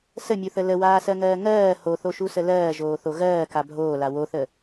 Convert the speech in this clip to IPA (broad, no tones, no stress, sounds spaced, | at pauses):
s ə mʲ u θ ə l ə w aː s ɜ ŋ ɜː ŋ ɜː h o θ o ʃ u s ə l ɜː ʒ oː θ o ɣ ɜː k a bʱ oː l a w o θ ə